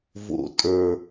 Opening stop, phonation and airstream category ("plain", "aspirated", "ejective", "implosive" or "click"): ejective